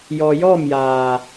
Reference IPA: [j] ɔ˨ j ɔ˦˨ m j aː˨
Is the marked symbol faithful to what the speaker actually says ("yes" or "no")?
yes